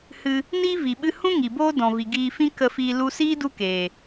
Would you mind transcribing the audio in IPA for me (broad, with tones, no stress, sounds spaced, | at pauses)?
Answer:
h ɨ˧ | n i˦ v i˨ ɓ ɨ˧ h ũ˦ ŋ i˨ b oː˦ d ɔ̃˨ v i˨ ɡ iː˧ f ĩ˦ k ə˧ f iː˧ l u˧ s iː˦ d u˦ k eː˨